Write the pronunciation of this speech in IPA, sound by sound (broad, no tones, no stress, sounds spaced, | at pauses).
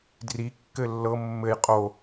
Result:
d r i kː ɘ lː ɤ mː ɘ j qʼ o